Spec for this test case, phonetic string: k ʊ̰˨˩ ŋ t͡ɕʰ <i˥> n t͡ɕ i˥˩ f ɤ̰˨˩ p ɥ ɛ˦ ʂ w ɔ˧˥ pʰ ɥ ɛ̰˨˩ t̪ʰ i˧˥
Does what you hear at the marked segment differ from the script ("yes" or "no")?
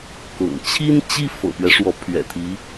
no